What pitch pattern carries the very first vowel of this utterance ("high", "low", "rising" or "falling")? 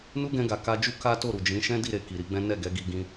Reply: high